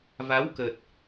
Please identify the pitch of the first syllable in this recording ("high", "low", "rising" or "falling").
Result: rising